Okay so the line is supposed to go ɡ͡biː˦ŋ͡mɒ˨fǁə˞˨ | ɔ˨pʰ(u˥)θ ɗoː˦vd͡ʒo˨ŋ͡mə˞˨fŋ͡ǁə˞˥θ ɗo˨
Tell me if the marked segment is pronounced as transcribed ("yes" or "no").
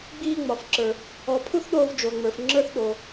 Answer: yes